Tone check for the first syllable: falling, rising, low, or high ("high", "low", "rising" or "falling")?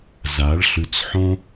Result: rising